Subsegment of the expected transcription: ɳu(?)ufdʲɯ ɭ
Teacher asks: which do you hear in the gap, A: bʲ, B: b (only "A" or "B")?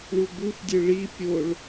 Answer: B